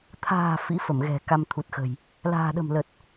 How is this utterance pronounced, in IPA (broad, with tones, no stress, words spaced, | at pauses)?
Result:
t̪ʰa̤ː˨˩ fḭ˧˥fə˧˩mɣɛ̤˨˩ ka˧mt̪ʰu˨˩t̚xə̤˨˩j | la̤ː˨˩ɗə̤˨˩m lə˨˩t̚